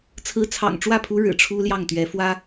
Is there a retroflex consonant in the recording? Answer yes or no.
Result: yes